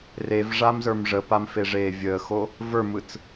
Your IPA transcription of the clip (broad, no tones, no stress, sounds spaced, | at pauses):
r e v ʐ a m z ə˞ m ʐ ə p a m f e ʐ eː vʲ əː x o | v ə˞ m ɯ t͡s